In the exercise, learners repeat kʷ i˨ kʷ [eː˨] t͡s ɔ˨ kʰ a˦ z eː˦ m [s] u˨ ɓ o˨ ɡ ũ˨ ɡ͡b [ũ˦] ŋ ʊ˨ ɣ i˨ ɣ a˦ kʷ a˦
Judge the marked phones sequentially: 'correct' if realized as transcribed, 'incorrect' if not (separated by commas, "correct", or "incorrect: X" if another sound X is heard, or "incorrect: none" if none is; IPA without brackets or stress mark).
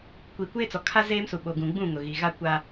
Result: incorrect: eː˦, correct, incorrect: ũ˦˨